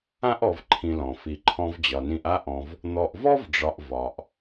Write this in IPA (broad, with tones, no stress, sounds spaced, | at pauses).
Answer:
ã˥ ʔ ɔ˨ v ǃʰ ĩ˨ l ɔ̃˩ f i˩ ǃʰ ɔ̃˨ v d͡ʑ ɒ˩ n ĩ˨ ʔ a˦ ʔ ɔ̃˨ v | n̪ ɔ˨ ʔ v ɔ˥ v ɖ͡ʐ ɒ˨ ʔ v ɒ˩ ʔ